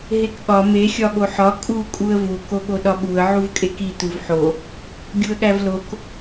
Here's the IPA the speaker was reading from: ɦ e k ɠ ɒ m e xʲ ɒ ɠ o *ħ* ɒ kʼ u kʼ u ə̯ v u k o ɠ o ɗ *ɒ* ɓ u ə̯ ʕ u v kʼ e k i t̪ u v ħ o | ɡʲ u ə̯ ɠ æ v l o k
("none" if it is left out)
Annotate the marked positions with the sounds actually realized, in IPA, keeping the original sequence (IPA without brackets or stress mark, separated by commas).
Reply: ħ, ɒ